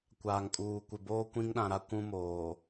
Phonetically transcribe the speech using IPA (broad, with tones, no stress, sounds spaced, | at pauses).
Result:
kʷ aː˨ ŋ kʼ uː˨ kʷ ɪ˨ b oː˦ kʷ ĩ˦ ŋ ɗ ã˨ ɾ a˦ kʷ ũ˦ m oː˨